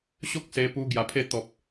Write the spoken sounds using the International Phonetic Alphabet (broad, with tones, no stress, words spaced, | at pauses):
ɕo˦k̚se˧pu˧ ɡja˧pʰe˥˧ t̪ɔ˦p̚